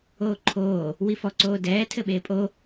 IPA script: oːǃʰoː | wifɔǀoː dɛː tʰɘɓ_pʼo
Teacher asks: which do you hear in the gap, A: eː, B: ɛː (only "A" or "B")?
A